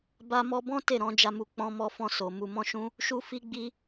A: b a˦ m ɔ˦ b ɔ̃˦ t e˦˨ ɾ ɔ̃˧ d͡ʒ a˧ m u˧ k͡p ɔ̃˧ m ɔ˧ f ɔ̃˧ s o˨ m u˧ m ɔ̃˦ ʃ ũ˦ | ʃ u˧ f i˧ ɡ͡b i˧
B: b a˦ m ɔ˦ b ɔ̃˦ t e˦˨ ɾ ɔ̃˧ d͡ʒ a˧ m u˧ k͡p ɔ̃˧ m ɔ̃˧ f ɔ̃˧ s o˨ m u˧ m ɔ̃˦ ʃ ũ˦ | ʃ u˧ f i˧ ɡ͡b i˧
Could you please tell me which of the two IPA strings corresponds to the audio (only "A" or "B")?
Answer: A